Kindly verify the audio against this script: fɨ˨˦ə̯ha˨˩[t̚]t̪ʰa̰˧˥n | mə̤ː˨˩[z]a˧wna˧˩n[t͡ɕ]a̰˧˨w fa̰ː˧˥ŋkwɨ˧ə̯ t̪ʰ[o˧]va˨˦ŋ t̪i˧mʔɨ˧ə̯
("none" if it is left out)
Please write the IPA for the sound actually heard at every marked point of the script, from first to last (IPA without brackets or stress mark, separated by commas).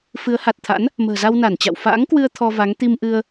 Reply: t̚, z, t͡ɕ, ɔ˧